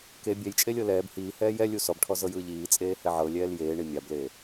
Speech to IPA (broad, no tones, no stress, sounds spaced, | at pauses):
k e bʲ ɛ j t͡ʃʼ e lʲ ɤ l ɛː b h iː h ɛː j ɛ lʲ u s ɔ b ʈʰ ɔ z ɤ j ɯː ʎ iː t͡sʼ eː h ɛ ʕ ɤ lʲ ɛː l j eː ɳ i mʲ a b l eː